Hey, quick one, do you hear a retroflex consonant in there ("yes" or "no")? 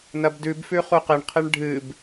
yes